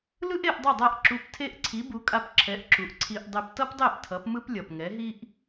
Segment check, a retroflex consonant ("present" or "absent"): absent